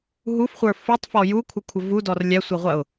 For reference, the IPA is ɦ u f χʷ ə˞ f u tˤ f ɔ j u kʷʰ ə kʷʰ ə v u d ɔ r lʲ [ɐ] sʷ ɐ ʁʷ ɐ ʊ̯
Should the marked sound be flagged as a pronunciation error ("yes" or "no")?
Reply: yes